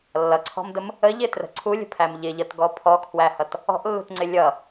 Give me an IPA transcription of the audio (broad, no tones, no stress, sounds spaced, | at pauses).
lː ʌ ǀʰ ɔ̤ m d ə m | ə ʎ ɪ t r ə̤ ǀʰ u lʲ ə̤ pʰ æ m ʎ ɪ ʎ ʌ t ɡ ɔ pʰ ɔ kʰ w æ h ʌ t | ɔ̤ ʔ lː ṳ t ŋ͡ǀ ɪ lʲ ʌ